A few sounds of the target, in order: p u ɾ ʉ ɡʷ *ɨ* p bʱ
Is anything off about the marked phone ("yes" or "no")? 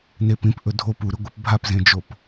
no